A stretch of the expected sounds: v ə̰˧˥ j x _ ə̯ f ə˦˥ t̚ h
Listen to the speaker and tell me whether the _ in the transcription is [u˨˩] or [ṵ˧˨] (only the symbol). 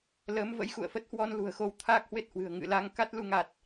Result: ṵ˧˨